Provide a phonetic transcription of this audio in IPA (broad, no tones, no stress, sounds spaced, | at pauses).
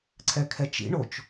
ǀʰ ɛ kʰ ɛ t͡ʃ ḭ ɳ o t͡ʃ